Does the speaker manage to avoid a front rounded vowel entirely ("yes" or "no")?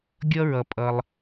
yes